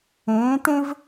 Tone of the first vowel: rising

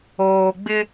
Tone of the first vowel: low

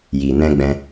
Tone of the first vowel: low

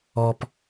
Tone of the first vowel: low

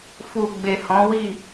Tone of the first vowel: low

